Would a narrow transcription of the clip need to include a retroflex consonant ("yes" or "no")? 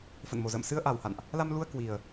no